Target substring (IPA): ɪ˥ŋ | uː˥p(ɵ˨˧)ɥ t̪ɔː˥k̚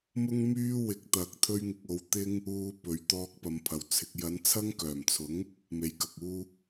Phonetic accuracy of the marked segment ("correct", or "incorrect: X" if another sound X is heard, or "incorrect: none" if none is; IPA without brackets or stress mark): correct